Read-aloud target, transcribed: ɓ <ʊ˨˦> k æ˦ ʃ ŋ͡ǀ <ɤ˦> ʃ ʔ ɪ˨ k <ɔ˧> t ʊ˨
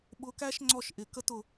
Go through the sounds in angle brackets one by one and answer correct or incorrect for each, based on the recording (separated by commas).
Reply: correct, incorrect, incorrect